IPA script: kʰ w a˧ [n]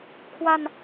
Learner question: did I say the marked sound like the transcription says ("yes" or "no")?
yes